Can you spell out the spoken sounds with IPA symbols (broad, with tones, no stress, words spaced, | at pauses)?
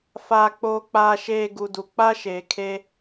faː˨k͡poː˨k͡paː˨ʃeː˨ ɡu˨du˨ k͡pa˦ʃeː˨kʰe˦